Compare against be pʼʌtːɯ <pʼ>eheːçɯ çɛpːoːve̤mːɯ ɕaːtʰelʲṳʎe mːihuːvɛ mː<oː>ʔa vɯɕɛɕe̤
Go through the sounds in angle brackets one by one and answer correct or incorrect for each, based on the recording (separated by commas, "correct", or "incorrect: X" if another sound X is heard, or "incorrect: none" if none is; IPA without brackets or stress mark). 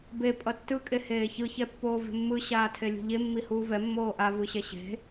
incorrect: kʼ, correct